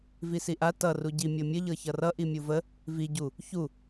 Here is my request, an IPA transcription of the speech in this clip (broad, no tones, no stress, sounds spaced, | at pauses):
v i s i ʔ a t ʌ r u ɟ i mʲ ɤ mʲ ə ʎ ɤ ç ʌ r ʌ ʔ i mʲ u v ə | v i ɟ u | ç u